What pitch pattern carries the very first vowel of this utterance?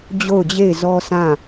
falling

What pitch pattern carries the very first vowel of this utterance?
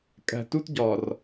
low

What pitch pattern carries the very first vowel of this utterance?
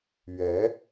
rising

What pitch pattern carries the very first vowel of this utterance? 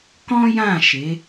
high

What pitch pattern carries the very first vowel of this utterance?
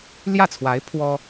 falling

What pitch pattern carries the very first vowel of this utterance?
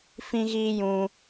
high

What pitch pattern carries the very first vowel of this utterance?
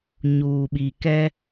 low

